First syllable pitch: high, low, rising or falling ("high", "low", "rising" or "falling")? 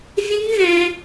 high